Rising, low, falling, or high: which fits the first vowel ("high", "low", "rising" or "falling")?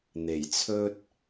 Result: low